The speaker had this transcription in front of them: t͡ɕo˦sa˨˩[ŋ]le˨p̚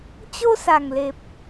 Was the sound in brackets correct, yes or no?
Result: yes